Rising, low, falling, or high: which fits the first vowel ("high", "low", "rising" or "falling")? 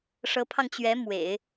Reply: rising